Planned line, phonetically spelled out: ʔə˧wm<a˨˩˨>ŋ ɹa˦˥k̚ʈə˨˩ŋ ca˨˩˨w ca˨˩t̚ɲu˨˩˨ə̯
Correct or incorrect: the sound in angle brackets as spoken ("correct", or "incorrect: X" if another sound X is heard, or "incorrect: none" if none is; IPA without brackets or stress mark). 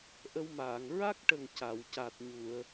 incorrect: aː˨˩˨